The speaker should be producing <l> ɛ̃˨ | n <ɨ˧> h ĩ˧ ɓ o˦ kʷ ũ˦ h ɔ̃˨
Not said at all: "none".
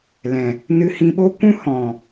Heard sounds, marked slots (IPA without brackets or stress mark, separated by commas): l, ɨ˧